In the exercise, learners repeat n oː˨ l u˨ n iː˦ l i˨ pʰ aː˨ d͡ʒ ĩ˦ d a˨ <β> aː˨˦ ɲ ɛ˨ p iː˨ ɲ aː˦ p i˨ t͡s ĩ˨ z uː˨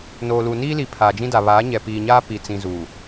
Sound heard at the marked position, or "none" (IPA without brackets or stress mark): β